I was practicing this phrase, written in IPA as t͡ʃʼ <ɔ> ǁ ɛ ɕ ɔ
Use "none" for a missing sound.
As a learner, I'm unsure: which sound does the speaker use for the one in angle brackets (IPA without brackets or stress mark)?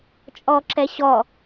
ɔ